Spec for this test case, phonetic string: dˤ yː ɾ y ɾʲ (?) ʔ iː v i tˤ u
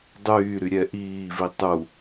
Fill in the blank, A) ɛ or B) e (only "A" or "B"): A